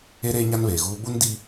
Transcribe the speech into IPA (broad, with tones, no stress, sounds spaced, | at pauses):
e˦ ɾ eː˦ ɲ a˦ n β eː˨ ɣ uː˦ ɓ u˦ n d i˦